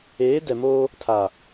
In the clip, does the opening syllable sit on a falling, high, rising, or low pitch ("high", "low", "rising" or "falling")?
rising